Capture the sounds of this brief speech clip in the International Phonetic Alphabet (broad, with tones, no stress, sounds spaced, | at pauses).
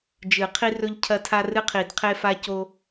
d͡ʒ ɨ˨˩˦ qʰ i˦ r ɵ˦ ʎ cʰ ɐ˦ tʰ a˦ r ɨ˦ qʰ i˨˩˦ d qʰ e˦ f a˦ c o˦